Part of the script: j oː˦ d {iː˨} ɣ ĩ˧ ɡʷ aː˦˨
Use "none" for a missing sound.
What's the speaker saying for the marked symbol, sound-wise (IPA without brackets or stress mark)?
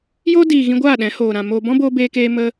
iː˨